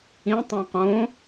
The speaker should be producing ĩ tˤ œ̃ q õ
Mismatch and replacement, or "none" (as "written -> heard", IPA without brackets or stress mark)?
none